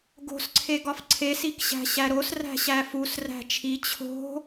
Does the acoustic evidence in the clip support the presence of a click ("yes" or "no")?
yes